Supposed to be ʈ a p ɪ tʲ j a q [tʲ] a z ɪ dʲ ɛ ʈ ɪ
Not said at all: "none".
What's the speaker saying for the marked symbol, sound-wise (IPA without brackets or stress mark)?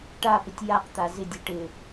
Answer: t̪